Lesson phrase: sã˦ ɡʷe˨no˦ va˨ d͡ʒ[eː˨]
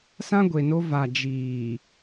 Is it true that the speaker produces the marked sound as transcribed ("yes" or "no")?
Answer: no